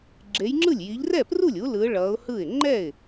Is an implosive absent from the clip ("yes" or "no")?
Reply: yes